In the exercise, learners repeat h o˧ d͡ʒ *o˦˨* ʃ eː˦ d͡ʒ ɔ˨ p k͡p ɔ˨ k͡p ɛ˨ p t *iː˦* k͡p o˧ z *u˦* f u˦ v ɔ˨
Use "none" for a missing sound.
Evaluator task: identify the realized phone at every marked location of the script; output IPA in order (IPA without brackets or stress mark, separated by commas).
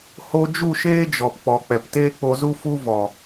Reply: u˦˨, eː˦, u˦